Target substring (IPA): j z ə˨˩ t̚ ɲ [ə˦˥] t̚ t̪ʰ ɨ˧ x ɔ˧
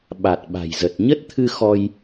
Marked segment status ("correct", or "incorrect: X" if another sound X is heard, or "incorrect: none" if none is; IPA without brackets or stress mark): correct